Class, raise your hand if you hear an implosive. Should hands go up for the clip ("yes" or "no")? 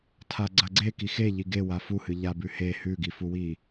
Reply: no